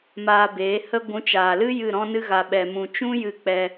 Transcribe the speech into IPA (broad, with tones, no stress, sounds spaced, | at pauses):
m aː˧ b eː˨˦ h ə˦ ɡʷ ũ˨˦ t͡ʃ aː˨ l ɨ˦ j ɨ˦˨ ɾ ɔ̃˦ n ɨ˦ ɣ a˧ ɓ ɛ˧ m ũ˧ t͡ʃ ũ˦ j ɨ˧ k͡p ɛ˧